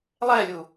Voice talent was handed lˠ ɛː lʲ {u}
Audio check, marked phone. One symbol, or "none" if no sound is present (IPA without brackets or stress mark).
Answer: u